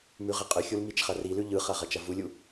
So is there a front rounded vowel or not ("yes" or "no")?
yes